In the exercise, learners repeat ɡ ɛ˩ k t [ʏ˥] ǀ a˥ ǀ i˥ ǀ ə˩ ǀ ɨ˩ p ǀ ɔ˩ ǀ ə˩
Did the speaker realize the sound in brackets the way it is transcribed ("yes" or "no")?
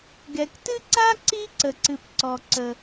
no